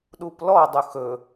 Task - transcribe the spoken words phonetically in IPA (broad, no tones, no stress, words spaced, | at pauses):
ɗuplɔ dˤʊxɵ